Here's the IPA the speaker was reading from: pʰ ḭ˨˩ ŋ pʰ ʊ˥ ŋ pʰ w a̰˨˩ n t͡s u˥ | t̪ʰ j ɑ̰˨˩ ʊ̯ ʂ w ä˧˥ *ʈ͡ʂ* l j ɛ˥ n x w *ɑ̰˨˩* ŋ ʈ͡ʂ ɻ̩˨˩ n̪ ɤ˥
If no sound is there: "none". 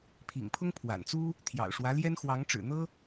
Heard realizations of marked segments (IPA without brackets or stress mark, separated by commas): none, ɑ˧˥